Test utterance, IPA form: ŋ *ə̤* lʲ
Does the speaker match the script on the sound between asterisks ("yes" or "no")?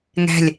no